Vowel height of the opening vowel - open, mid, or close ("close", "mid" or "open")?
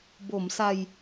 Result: mid